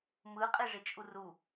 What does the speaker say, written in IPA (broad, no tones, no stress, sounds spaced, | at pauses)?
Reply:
m ɯ qʼ e ʐ e t͡ʃʼ u r u